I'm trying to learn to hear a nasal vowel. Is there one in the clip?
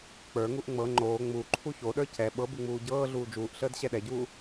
no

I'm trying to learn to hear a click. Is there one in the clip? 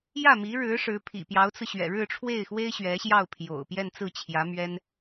no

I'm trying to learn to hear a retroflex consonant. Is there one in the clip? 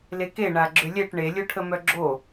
yes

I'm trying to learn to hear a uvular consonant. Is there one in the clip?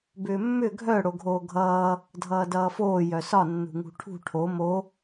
no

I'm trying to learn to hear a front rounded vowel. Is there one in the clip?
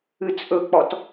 no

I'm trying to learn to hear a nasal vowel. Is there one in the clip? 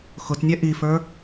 no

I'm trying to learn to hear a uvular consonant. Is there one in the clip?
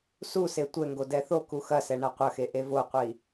yes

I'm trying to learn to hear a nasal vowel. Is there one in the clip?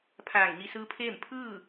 no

